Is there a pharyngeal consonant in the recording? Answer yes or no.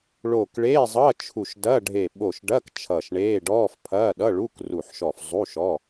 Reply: yes